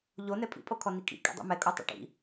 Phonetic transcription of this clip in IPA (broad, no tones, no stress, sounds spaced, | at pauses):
ʎ o n ɛ pʼ ḭ pʼ o kʰ ɔ n i kʼ ḭ kʼ ɛ̰ dˤ ṵ m ɛ kʼ o tˤ o̰ ʈ ḭ